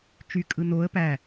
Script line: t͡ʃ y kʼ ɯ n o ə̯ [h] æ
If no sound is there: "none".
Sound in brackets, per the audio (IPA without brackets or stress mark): p